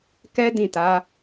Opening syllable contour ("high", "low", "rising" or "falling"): high